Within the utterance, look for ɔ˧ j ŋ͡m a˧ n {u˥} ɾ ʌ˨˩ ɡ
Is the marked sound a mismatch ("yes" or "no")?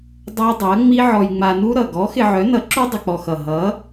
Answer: no